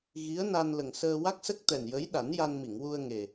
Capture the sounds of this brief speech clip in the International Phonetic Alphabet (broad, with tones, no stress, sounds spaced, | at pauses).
ɣ i˧˥ ə̯ n a˧ n l ə˨˩ ŋ s əː˧ w a˦˥ k̚ s ə˦˥ k̚ t̪ ɛ˨˩ n j ə˧˥ j ɗ a˨˩˦ n j a˧ n m i˨˩˨ ŋ w u˧ ə̯ ŋ e˨˩